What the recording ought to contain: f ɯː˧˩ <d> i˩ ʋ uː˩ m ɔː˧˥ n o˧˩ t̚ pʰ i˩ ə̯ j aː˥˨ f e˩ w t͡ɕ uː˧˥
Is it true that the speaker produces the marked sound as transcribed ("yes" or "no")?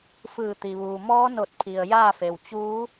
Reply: no